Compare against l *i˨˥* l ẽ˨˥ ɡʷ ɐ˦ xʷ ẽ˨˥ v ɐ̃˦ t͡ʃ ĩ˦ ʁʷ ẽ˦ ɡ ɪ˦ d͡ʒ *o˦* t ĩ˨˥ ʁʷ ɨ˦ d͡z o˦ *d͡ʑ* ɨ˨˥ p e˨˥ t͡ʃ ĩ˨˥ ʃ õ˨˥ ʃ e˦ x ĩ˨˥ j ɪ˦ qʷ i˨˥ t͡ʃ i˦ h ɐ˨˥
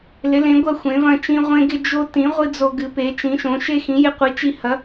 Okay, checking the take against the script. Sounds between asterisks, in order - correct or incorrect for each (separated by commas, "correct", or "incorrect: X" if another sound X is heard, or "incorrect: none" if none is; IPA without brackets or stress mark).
incorrect: ɪ˨˥, correct, incorrect: ɡ